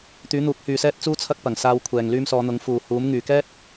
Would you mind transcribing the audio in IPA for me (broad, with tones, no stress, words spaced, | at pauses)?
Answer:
t̪yː˨˥n̪uː˨˥k̚hyː˨ sɛː˥t̚t͡suː˥t͡sʰɐ˥k̚ pɐ˨˩ŋsaː˧wkʷʰɛː˨ŋ lyː˧msɔː˨˧n̪ʊ˨˥ŋ fuː˨huː˨˥m ŋyː˨kɛː˥t̚